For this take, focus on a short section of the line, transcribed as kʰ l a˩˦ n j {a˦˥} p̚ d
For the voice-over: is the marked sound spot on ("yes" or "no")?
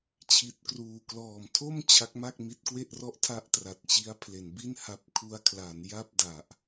no